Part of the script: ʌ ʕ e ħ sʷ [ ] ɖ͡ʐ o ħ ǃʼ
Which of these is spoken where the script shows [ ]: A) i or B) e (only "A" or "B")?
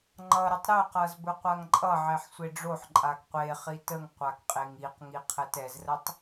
B